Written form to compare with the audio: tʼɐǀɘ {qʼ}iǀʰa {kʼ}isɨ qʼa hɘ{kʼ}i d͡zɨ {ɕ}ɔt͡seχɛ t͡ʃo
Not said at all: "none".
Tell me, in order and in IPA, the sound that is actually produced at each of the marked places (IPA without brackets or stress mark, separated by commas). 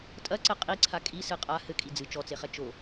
qʼ, kʼ, kʼ, t͡ʃ